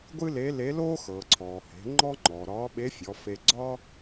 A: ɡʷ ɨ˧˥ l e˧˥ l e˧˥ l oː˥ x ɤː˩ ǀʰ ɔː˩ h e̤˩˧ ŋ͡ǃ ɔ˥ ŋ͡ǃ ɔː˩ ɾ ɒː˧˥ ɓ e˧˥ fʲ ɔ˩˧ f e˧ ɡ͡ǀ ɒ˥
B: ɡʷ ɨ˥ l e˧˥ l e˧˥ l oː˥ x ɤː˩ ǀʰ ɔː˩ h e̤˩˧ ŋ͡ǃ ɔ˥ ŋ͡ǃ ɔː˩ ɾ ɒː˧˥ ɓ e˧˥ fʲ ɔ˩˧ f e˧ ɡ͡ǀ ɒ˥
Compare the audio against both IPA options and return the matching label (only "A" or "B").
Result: B